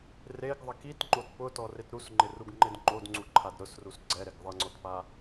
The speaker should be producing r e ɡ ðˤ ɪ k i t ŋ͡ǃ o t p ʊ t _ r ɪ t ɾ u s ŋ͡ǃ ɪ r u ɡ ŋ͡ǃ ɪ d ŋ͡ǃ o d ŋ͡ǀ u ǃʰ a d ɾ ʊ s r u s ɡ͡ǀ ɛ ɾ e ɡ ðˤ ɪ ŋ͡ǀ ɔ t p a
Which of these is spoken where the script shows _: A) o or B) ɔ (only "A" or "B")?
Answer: B